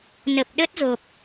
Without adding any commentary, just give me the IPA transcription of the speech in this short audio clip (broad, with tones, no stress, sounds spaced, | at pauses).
n ə˨˩ p̚ ɗ ə˦˥ t̚ z o˨˩ p̚